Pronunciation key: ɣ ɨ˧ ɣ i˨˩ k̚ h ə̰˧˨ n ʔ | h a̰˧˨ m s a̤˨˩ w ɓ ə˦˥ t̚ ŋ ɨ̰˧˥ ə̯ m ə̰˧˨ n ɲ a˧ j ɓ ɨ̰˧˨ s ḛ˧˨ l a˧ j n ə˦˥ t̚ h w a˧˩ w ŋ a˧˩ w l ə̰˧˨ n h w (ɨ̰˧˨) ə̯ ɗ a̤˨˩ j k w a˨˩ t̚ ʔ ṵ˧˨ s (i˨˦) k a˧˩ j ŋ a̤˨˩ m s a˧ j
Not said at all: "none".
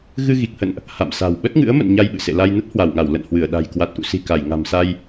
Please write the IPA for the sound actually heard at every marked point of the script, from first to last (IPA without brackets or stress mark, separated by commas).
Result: ɨ˧˩, i̤˨˩